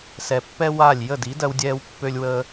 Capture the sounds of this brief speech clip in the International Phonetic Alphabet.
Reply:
s ɛ˩ pː ɛ˥ w a˥˩ lʲ j ə˥˩ d i˩˥ d ɜ˧ w dʲ ɛː˧ w pː ø˧ lʲ w əː˧

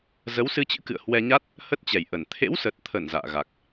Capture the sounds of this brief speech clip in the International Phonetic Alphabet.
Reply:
z ə˨˦ w s ɨ˧ t͡ɕ ɨ̰˧˥ k ɨ̰˧˨ ə̯ h w ɛ˧ ɲ a˦˥ t̚ | h ə˦˥ t̚ t͡ɕ ɛ˨˩ j ʔ ə˨˩ n t̪ʰ ḛ˧˥ w s ə˨˩ t̚ t̪ʰ ə˧˩ n z a̰ː˧˨ ɣ a˨˩ k̚

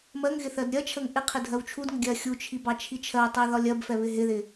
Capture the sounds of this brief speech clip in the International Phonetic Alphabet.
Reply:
m ɜ ŋ ɣ ɪ θ ɜ d ɾʲ ɜ t͡ʃʰ ə ŋ ʔ ɪ qʰ ɪ dʱ ɜ w t͡ʃʰ u d ŋ ə ɡʲ ɜ xʲ u t͡ʃʰ i b ɑ t͡ʃʰ i t͡ʃʰ ɜ tˤ ɛ ð ɒ lʲ ɜ b f ɛ β ɪ ɦ ɪ ð ɪ

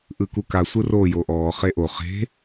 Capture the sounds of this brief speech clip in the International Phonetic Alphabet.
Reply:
ʔ ɯ k u k a sʷ ɯ r o j o ʔ ɔː χ e ʔ o χ e̤

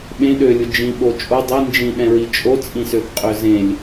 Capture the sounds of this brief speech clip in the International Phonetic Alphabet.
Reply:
ɓ ẽ ɗ ø lʲ ʊ d͡ʒ ĩ ɓ o t͡ʃʼ o dˤ i n d͡ʒ ĩ ɗ ɛ̃ ɹ i t͡ʃʼ o t͡sʼ ĩ s ø θ qʼ ø z ẽ lʲ

